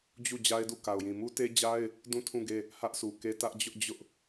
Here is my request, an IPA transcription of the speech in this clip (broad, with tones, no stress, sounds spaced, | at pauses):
d͡ʑ u˦˨ d͡ʑ a˦ ɪ̯ d u˦˨ k a˨ ʊ̯ j ĩ˨ m u˦ t e˦ d͡ʑ a˦ ɪ̯ | d ũ˦˨ tʰ ũ˦˨ ɡ e˦˨ | h ä˦ ʔ sʰ u˨ k e˦ t ä˦ ʔ d͡ʑ ʊ˦ ʔ d͡ʑ ʊ˦ ʔ